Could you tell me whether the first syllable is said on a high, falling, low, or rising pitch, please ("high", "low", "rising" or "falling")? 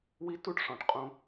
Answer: high